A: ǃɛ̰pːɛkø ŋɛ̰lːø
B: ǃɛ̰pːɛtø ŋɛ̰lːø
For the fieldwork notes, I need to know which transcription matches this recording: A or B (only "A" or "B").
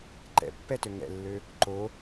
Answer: B